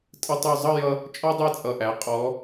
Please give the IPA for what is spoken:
tʼ ə˧ tˤ ʉ˧˩ zˤ ʌ˥˧ j ʌ˧ | t͡ʃʼ ɔ˥ dˤ ɛ˥˧ t͡sʼ ʌ˧˩ ʔ æ˩˧ qʼ ɔ˩˧

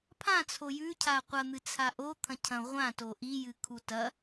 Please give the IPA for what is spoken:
pʰ ã t͡sʰ o j ʉ cʰ a qʷ ɐ n̪ ɨ t͡sʰ a ʔ o t̪ʰ ɐ̃ cʰ ɐ̃ ʁʷ ã t o ʔ i j ɨ kʰ u t ɐ

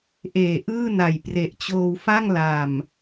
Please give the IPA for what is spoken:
ʔ eː˨˩ ʔ ɯː˥˩ n a˨˩ j p r e˨˩ ʔ t͡ɕ oː˧ w f a˥˩ ŋ l a˨˩ m

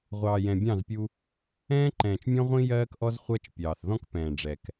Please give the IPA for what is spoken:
ʁʷ ɑː˨ j ɛ̃˨ bʲ ɑ̃˦˨ z pʲ u˦ | ɛ̃ː˦ ǃ ɛ̃ː˨ t͡ʃ mʲ ɔ̃˦ ʁʷ ĩ˦ j ɜː˦ k ʔ ɔ˦ z χʷ ɜ˦ t͡ʃ pʲ ɑː˨ θ ð ɔ̃˦ k p ɛ̃ː˨ ɖ͡ʐ ɛ˨ k

